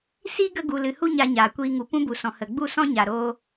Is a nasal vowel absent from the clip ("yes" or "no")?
no